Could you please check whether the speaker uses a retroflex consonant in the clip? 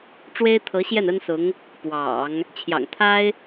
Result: yes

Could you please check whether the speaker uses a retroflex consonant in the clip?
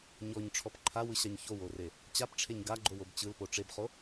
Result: yes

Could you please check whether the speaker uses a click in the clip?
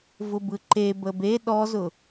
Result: yes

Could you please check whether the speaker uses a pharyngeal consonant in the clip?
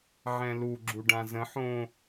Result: yes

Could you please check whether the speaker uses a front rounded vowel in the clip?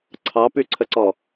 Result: yes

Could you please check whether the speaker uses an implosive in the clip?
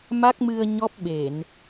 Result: yes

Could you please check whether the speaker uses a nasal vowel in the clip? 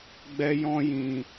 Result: yes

